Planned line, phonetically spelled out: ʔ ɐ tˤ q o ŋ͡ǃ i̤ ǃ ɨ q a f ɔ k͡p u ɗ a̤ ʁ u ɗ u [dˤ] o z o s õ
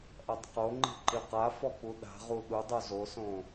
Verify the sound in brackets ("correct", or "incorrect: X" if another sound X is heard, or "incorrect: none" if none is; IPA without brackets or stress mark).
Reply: correct